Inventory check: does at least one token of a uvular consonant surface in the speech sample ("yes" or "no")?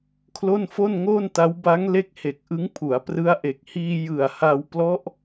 no